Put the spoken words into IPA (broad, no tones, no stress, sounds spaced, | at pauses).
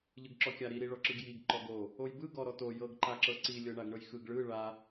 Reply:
ʎ ɯ ɡ ǁ ɔ kʲ a ɾ i ɾ i ɭ ɔ ǁ ɯ ɡ j i ɡ ǃ ɔ ɡ o | o j b ɯ ɡ ɔ ɾ ɔ t o j ɤ ɡ ǃ a ǁ ɤ ǀ i lʲ ɤ ɳ a ɡ ɳ ɤ j x ɯ ɡ ɭ ɯ ɭ a